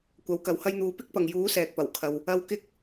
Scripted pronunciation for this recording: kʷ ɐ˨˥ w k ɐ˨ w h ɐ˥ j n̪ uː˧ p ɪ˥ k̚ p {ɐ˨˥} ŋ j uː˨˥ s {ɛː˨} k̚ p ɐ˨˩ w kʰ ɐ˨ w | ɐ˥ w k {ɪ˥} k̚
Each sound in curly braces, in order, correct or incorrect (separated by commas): incorrect, correct, correct